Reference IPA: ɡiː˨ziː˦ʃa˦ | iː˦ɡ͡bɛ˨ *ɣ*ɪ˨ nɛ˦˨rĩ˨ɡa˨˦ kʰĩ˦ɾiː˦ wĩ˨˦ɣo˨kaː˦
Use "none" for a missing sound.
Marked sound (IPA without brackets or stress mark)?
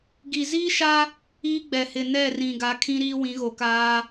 h